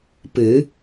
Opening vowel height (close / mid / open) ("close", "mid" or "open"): close